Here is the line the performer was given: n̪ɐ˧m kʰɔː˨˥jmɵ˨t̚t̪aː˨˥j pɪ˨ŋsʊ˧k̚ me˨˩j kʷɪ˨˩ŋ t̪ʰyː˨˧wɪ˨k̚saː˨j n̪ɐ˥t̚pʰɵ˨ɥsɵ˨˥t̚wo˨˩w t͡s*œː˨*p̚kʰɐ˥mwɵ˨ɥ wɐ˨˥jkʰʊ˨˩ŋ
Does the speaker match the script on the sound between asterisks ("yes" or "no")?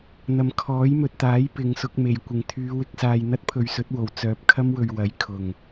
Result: yes